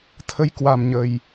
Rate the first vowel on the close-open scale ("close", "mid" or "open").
mid